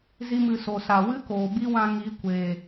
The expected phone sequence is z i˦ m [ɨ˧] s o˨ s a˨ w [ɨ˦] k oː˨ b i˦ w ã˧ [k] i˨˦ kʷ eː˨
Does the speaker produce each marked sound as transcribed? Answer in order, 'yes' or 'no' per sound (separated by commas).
yes, yes, no